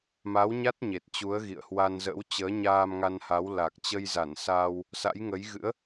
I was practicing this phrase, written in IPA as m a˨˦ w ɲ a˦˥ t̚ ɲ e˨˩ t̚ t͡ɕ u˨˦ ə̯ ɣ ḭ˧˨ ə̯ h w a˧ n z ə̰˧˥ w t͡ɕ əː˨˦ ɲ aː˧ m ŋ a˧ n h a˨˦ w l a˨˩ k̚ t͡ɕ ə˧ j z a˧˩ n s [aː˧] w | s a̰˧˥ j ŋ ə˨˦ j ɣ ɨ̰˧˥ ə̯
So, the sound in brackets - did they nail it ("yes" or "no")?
yes